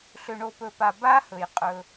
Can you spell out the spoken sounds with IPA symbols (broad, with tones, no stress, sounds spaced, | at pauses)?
ɬ ø˨ ɳ o˨ p ɵ˨ p a˨ b a˦ h ɵ˨ j qʼ ɵ˦